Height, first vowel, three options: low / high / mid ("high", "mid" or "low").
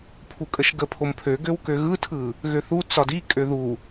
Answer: high